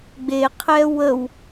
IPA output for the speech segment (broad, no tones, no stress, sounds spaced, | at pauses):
ɡ͡b e qʰ ɛ w ə w